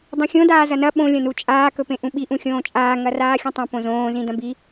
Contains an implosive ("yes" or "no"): yes